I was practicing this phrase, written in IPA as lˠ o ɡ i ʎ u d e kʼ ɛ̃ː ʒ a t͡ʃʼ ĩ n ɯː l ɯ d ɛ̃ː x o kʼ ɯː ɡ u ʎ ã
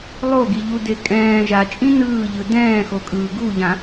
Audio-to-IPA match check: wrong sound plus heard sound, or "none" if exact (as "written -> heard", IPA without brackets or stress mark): l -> ʎ